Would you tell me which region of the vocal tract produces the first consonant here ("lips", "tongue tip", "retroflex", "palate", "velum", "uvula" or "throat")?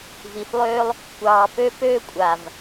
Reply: lips